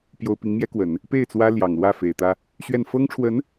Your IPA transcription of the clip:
p j o˥ ʊ̯ p i˧˥ ŋ m j ɛ˥ k w ə˨˩˦ n | p e˥˩ ɪ̯ t͡s w ä˥ l j ɑ˨˩ ŋ l w ä˥˩ f e˨˩ ɪ̯ t̪ ä˥ | ɕ ɥ ɛ˥˩ n f ɤ˥ ŋ ʈ͡ʂʰ w ə˧˥ n

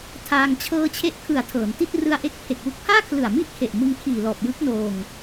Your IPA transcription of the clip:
tʰ aː˧ ŋ t͡ɕʰ ɤː˧ t͡ɕʰ e˦˥ ʔ kʰ ɯ˨˩ a̯ tʰ ɤː˩˦ n t i˥˩ t̚ r ɯ˧ a̯ ʔ e˦˥ k̚ pʰ e˨˩ k̚ w u˦˥ k̚ pʰ aː˥˩ kʰ l ɯ˨˩ a̯ m i˥˩ ʔ kʰ e˨˩ ʔ m ɯ˦˥ ŋ kʰ iː˨˩ l ɔː˨˩ p̚ j ɯ˦˥ k̚ n oː˧ ŋ

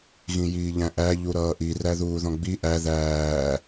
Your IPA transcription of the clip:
ɣ ĩ j iː ʎ æ̃ ʔ æ ʎ u ɾ ʌː ʔ i r æ ð uː ð ɔ̃ ɡ͡b i ʔ æ ð æː

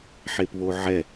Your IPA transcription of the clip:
ħ e p β o ʕ ɛ

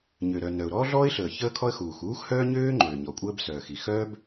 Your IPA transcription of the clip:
ɲ ø˩ ɾ œ˩ n œ˩ ʊ̯ ɾ ɔː˥ ɮ ɔː˥ ɪ̯ ɬ əː˩ ç əː˥ kʰ ɔ˥ ə̯ x uː˩ x uː˥ x h œː˥ ɲ øː˥ ŋ͡ǃ øː˩ ɲ ɔ˩ kʷʼ əː˥ b s œː˩ x i˩ x œː˥ b

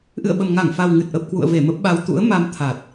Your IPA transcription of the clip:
ʔ ɨ̰˧˨ ə̯ ɓ ə˨˩ m ŋ a˧˩ ŋ f a˨˩ w ŋ ɨ˨˩ t̚ ʔ ə˨˩ p̚ k w ṵ˧˨ ə̯ v e˧˩ m ə˦˥ p̚ ɓ a˧ w t̪ ṵ˧˥ ə̯ m a˧ m t̪ʰ a˨˩ t̚

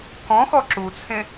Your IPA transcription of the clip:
k ɔ̃ x ɔ ǁ u t͡sʰ ẽ

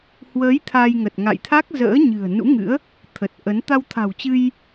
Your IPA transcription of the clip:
h w əː˨˦ j t̪ʰ a˧ j ŋ ə˨˩ t̚ ŋ a̰˧˨ j t̪ʰ a˦˥ k̚ z ə̰ː˧˥ ɲ ɨ̤˨˩ ə̯ n ṵ˧˥ ŋ ɨ̰˧˥ ə̯ | t̪ʰ ə˨˩ t̚ ʔ ə˨˦ n t̪ a˧ w t̪ʰ a̤˨˩ w t͡ɕ ɨ˧ j

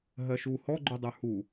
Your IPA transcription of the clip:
ɦ ɜ ʃ u h ɔ ɡ͡ǃ u dˤ ə˞ h u

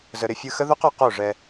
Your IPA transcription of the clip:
z ə˨ ɾ ɪ˧ fʲ ɯ˧ x ə˦ ð o˦ q ɔ˨ q o˦˨ ʐ ɛ˧

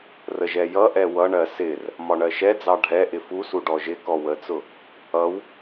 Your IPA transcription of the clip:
r ə ʒ ɛ j ʌ ʔ ɛ w ʌ ɳ ɜ s ɪ r | m ɒ ɳ ɜ ʃ ɛ d͡z ɑ ɖʱ ɛ ʔ ɪ f u s u ɖ ɔ ʒ ɪ k ɔ w ə t͡s ʊ | ʌ w

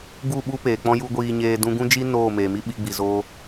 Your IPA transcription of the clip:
ɡ u˦˨ ɓ u˦ p eː˨ k͡p ɔ̃˦ j u˦ ɡʷ iː˧ ɲ eː˧ d ũ˧ ɡ ũ˦ d͡ʒ i˦ n oː˦˨ m eː˨ m i˦ ɓ i˧ ɡ͡b i˨ z oː˧

